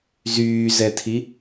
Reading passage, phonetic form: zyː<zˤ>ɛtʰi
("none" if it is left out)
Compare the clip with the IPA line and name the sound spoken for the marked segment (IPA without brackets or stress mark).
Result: z